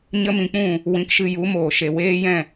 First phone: ɲ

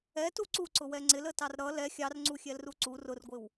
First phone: ɛ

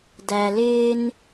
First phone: d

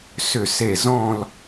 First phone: s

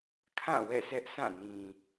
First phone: kʰ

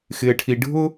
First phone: x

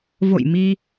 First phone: v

